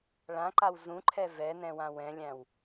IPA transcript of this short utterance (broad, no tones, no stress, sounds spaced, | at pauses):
ɭ ã ǃ a w z ũ ǃʰ ɛ v ɛ n ɛ̃ w ã w ɛ̃ lʲ æ̃ w